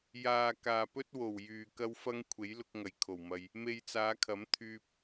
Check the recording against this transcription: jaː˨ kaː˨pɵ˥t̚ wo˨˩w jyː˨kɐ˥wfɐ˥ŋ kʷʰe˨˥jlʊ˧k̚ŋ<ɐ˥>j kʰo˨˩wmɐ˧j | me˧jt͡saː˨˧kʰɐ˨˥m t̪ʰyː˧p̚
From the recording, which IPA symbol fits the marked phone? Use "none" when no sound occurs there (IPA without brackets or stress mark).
ɐ˨˩